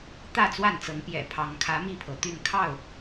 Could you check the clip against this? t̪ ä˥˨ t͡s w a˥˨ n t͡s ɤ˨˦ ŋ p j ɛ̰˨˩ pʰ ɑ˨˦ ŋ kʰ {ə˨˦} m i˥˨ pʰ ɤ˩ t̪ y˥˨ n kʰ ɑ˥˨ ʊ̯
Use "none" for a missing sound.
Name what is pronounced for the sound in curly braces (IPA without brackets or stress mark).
ä˨˦